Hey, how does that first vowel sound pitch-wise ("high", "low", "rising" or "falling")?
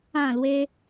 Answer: falling